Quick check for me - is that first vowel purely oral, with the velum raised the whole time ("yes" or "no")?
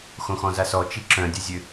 no